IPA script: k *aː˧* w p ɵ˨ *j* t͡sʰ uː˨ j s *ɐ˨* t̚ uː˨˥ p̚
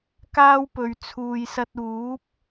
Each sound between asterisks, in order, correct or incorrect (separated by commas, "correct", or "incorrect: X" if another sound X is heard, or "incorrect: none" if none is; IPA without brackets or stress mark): incorrect: aː˥, incorrect: ɥ, incorrect: ɐ˧